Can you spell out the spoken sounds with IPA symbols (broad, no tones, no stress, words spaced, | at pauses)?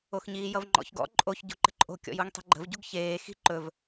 oxɲiːjʌvŋ͡ǃɔ̰ç ɡɔ̰ ǃʼoç ɟṳǃə̤ǃʼo̤ kʲɔ̰juŋtˤi̤ɡ͡ǃə̤v ɟuɡçeː xi̤ ǃɵv